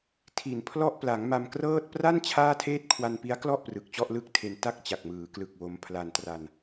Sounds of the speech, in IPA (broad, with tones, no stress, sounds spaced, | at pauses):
tʰ i˨˩ n pʰ l ɔ˥˩ ʔ p l a˩˦ ŋ m a˧ m k r ɤː˥˩ t̚ p r a˥˩ n t͡ɕʰ aː˥˩ tʰ eː˥˩ t̚ kʰ w a˧ n p i˦˥ a̯ k l ɔ˥˩ ʔ p r ɯ˨˩ k̚ t͡ɕ ɔ˥˩ ʔ l ɯ˥˩ k̚ tʰ e˧ n t a˥˩ k̚ t͡ɕ a˨˩ k̚ m ɯː˩˦ k l ɯ˨˩ k̚ w o˧ m pʰ l a˧ n t r a˧ n